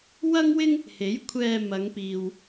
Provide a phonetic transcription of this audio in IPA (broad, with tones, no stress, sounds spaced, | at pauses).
w ɐ˥ ŋ w ɪ˥ ŋ | h e˨˥ j kʷʰ ɛː˧ m ɐ˨˧ ŋ p iː˨ w